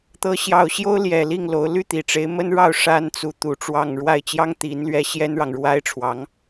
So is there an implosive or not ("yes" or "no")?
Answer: no